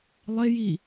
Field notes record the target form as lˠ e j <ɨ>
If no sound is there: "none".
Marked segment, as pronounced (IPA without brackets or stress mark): i